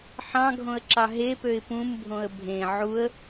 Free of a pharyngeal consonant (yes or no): no